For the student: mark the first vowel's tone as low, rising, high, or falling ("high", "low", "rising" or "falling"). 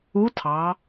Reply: rising